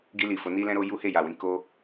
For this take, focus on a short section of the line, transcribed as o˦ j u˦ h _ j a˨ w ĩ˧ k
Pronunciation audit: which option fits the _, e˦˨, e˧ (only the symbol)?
e˦˨